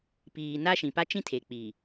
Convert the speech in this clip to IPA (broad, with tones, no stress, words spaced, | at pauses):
piː˨ na˦ʃĩ˨ pa˦t͡ʃĩ˦tʰe˨ k͡pi˨